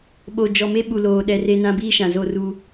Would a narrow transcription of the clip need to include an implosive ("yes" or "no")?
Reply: yes